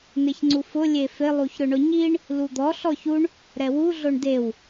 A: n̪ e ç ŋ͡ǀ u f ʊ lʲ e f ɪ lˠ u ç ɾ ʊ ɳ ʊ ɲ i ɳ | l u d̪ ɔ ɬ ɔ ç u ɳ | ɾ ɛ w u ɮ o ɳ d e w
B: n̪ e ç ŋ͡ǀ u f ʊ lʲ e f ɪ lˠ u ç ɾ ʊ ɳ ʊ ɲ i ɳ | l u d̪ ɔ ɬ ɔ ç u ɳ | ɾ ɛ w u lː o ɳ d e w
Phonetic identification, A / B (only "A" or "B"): A